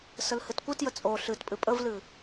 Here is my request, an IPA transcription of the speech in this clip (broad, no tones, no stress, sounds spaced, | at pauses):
s ə l h ɨ t kʷ ɨ t j ə t͡sʼ o ɬ ɨ t pʼ ɨ pʼ ə v l ɨ